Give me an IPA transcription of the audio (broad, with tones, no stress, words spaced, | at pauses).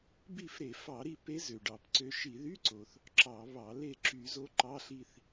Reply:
bi˦˨fɾe˧˩˧ fɑ˧˩˧ɾi˦˨ pe˧˥ zø˩ɖɑ˧˩˧pǀø˧˥ ʃi˧˩˧ðy˧˥˧ǀo˩θ | ǁɑ˧˩˧βɑ˧˩˧ le˦˨ ǁy˧˩˧zo˧˥ ǃɑ˧˥˧ɬi˦˨θ